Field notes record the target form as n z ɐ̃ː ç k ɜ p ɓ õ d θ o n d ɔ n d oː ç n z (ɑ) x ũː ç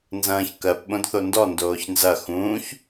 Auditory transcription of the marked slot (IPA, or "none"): ɐ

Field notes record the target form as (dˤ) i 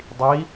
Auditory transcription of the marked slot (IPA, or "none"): dˤ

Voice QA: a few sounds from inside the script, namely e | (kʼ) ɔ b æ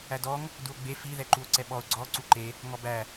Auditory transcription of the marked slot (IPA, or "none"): ŋ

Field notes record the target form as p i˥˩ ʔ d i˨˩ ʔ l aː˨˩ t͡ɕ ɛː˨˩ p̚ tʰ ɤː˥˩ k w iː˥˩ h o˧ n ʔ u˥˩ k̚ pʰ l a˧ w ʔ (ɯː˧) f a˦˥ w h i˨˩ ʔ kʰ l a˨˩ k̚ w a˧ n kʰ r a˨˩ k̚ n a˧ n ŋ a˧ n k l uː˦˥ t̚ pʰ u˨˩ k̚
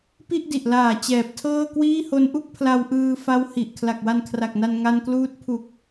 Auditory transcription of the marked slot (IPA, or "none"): ɯː˧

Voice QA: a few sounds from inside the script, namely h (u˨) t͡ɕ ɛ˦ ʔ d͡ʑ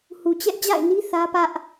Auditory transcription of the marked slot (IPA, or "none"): u˨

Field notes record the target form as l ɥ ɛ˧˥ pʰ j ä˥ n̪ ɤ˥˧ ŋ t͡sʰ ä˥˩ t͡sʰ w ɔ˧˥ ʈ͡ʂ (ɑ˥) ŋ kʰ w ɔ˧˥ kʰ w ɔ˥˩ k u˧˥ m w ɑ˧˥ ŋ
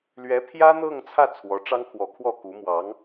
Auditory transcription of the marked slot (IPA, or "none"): ɑ˥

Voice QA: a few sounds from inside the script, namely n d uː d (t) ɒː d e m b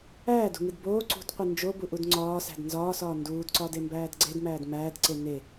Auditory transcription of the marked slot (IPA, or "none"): ǀ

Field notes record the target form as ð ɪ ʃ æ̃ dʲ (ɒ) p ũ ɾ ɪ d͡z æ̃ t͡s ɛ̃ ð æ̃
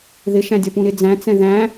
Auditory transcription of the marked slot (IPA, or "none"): ɒ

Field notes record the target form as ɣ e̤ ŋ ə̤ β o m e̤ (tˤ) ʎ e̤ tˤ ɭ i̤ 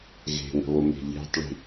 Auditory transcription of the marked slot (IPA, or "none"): none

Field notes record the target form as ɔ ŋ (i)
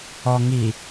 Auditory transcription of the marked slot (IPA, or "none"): i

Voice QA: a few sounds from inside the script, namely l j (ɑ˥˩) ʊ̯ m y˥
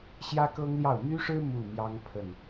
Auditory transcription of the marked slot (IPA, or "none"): ɑ˥˩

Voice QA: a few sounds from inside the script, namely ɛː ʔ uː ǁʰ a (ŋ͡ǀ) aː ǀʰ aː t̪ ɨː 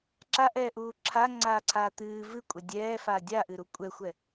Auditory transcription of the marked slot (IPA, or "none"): ŋ͡ǀ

